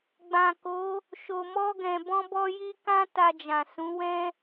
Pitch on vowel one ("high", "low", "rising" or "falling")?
low